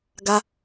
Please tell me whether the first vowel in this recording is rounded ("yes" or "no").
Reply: no